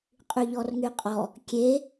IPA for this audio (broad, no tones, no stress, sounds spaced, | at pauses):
qʼ y ʎ ɔ r ŋ y qʼ ɔ | kʲ e